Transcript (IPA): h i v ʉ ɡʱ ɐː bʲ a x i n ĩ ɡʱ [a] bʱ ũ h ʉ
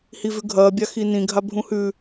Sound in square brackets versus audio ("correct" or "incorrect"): correct